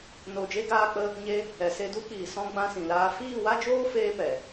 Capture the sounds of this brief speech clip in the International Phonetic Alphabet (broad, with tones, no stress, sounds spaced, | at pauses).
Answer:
n o˧ d͡ʒ e˦ ɡ aː˧ k͡p ə˧ | ɲ e˦ | ɛ˨ s e˧ d u˦ k͡p iː˨ s ɔ̃˧ ɡ͡b ã˦ s ĩ˨ l aː˦ f iː˦˨ w a˦ d͡ʒ oː˦ f eː˦ p ɛ˨